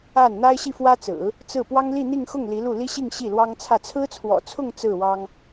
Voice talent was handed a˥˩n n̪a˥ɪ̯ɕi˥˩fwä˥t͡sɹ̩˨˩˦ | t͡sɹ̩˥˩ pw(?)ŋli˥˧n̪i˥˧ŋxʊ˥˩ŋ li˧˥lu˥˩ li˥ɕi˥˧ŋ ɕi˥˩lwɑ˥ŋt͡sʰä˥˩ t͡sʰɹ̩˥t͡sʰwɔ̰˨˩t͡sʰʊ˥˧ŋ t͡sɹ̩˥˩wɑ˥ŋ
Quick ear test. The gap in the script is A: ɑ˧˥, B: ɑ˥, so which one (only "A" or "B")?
B